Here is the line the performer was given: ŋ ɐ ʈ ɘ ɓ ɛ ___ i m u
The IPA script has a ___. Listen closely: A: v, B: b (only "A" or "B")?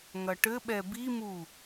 B